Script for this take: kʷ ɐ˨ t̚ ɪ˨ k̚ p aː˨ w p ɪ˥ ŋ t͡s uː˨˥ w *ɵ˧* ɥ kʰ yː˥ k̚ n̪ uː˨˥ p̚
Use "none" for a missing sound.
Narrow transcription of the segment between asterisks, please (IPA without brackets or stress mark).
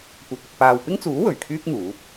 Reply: ɵ˨˩